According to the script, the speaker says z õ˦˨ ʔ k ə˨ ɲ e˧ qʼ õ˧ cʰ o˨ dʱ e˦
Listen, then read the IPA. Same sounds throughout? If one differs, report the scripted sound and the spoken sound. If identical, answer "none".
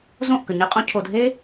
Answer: none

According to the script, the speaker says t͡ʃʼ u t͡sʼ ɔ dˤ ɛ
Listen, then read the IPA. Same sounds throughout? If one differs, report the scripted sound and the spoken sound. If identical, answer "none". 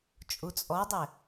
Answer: none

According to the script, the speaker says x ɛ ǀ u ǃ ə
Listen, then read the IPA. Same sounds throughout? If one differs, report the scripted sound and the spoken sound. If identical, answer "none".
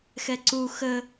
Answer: ǃ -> x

